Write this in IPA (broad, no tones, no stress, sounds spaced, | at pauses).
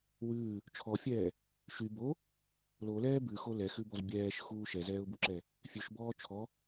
w ʉː | t͡ʃʰ ɔ fʲ ɛː | ʃ y b o | l o l ɛː b ʉ x o l ɛ x ʉ b ɔ z bʲ ɛː ʃ x uː ʃ ɛ z ɛː ʊ̯ b u ǁ ɛ | fʲ ʉ ʃ b ɔː t͡ʃʰ ɔ